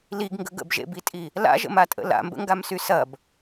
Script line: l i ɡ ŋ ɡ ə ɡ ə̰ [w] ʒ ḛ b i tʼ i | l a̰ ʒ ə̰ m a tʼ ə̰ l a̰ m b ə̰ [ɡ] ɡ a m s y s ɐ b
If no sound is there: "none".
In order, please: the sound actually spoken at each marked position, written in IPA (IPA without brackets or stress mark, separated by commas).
b, ŋ